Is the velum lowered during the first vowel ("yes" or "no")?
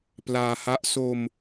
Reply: no